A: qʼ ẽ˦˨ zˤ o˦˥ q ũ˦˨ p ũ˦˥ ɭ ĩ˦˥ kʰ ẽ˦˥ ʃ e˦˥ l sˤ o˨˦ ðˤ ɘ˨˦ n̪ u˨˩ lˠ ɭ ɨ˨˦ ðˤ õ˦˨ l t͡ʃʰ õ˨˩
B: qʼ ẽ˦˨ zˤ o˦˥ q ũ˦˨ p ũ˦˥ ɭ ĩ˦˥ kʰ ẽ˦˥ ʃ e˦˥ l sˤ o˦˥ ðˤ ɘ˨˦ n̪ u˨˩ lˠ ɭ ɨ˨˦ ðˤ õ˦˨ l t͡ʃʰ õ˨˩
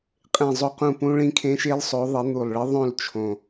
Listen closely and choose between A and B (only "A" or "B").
A